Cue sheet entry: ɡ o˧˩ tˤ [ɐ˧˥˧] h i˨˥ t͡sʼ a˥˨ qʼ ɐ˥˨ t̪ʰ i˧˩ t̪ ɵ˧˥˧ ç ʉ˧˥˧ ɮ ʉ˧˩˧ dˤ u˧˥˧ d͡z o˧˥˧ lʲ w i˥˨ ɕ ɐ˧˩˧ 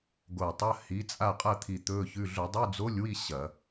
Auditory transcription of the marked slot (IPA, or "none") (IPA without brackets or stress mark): ɐ˧˥˧